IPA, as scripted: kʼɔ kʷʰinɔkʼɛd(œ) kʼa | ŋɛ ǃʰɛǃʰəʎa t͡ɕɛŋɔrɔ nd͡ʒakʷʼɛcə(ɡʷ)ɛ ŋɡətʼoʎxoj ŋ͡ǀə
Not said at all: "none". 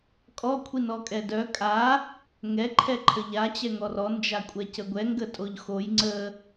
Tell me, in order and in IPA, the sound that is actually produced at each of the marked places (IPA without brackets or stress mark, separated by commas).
œ, ɡʷ